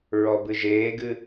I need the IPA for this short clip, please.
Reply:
ɹ ɔ b ɨ ʒ eː ɡ ɨ

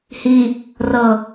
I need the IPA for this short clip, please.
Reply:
h i | r ɤ

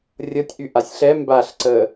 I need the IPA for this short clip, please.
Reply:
rʲ ʌ tʲ ʔ y ʔ a sʲ ɬ ɛ m b a ɬ ǀ ə

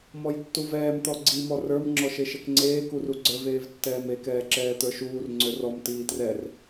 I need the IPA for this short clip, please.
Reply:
m ɔ j tː u v ɛː m t̪ ɔ ɡ͡ǀ i m ɔ r ə˞ m ŋ͡ǁ ɔ ʃ e ʃ ɛ k ŋ͡ǀ eː k u r u ɡ͡ǀ ə˞ v eː v tː ɛː m e k ɛː ǁ ɛː t̪ ə˞ ʃ uː r ŋ͡ǀ ø r ɔ m t iː t r ɛ r

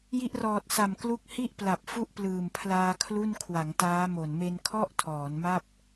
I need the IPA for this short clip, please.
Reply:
j i˦˥ ʔ r ɔː˨˩ t̚ s a˨˩ m k l u˦˥ k̚ h i˥˩ ʔ p l a˨˩ p̚ f u˥˩ ʔ p l ɯː˨˩ m pʰ l aː˧ kʰ l u˥˩ n kʰ w a˩˦ ŋ t aː˦˥ m o˨˩ n m e˧ n kʰ ɔ˥˩ ʔ tʰ ɔː˩˦ n m a˥˩ p̚

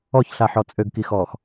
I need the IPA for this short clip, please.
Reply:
ɔ ç ɬ a ħ ɔ t͡sʼ ø ɡ k i x ɔː x

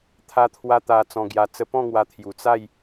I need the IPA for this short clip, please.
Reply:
t̪ʰ a˧ t̪ʰ w a˧ t̪ a˧ t͡s ɔ̃˧ ɡ j a˧ t͡s ə˦ p ɔ̃˥˧ ŋ w a˧ t̪ʰ j u˨˩ t͡s a˥˧ j

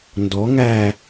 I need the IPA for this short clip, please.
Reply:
n d ɔ ŋ æ

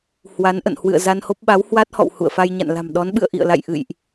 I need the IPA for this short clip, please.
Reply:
h w a˨˦ n ʔ ə̰˧˨ n h w ɨ̰˧˨ ə̯ z a˧ n h o˦˥ p̚ ɓ a˨˦ w h w a˦˥ t̚ h ɔ̰˧˨ w h ṵ˧˨ ə̯ f a˧ j ɲ a̰˧˨ n l a̤˨˩ m ɗ ɔ˨˦ n ɓ ɨ̰˧˨ ə̯ ʔ ḭ˧˨ ə̯ l a̰˧˨ j ʔ ɨ̰˧˨ j ʔ

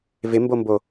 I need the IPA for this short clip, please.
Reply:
v ɪ m b o m b o

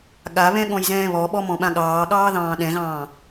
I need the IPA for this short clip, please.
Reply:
ɠ a β ɛ̃ ɠ ɔ̃ j z ɛ̃ː β ɔ ɓ ɔ m ɔ̃ ɓ ã ɠ ɑː ɠ ɑː ð ɑ̃ː ɗ ɛ̃ ɣ ɑ̃ː

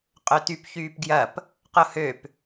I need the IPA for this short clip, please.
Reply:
qʼ ø t y p ç yː p ɡ j ɐ p | q ʊ h ø p

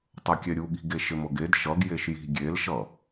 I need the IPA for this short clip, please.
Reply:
tˤ ʌ kʲ ɛ ɾʲ u ɠ i̤ ɡ e ʃ ɪ m ɤ ɡ e d ʃ ʌ ɡ j e ʃ j i̤ ɡʲ e l ʃ ʌ

